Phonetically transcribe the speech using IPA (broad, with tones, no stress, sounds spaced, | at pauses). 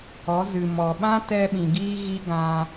ɔ˨˦ z ɨ˨ m ɔ˨ ɓ ã˦ t ɛ˧ ɓ ĩ˨ ɡ iː˦ ɣ i˦ ɡ ã˧